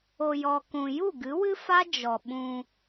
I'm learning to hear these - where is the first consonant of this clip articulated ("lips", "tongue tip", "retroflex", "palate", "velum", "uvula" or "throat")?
palate